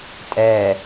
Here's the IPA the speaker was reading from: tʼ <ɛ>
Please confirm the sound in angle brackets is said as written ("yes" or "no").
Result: yes